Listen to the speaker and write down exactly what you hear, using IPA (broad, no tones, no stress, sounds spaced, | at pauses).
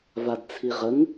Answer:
v a d t͡sʰ i ʁ ə ŋ